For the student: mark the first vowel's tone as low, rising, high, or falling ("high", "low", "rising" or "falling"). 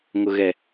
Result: low